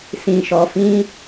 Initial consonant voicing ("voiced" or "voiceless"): voiceless